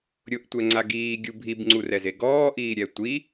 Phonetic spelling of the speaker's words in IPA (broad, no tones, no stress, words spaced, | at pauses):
ɾʲʊʔtʷɛŋ͡ǀa ɡiːɡʲu bʱibŋ͡ǀurɛze ɡɔːʔiːɾʲɛ tʷi